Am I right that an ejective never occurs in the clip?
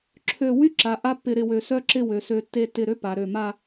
yes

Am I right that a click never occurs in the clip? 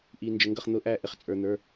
yes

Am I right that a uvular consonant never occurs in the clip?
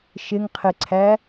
no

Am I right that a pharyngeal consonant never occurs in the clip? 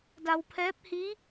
yes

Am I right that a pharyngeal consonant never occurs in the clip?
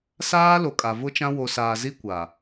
yes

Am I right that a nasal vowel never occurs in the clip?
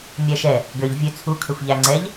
yes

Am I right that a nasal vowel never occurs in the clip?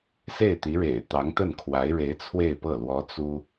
yes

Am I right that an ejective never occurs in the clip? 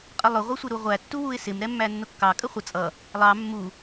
no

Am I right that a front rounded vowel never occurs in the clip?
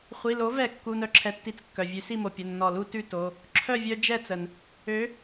no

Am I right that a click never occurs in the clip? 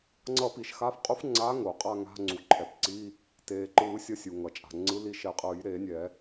no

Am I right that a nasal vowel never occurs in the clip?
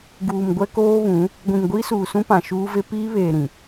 no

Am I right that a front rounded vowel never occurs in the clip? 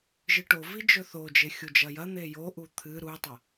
yes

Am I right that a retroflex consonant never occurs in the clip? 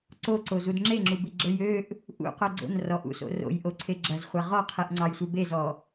yes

